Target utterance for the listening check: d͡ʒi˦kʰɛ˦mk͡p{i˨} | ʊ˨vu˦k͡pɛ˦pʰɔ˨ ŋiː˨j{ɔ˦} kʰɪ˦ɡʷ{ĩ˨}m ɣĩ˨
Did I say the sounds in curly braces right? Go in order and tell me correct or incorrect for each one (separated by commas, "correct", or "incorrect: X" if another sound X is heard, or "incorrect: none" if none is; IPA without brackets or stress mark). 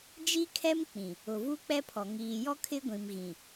incorrect: ĩ˨, correct, correct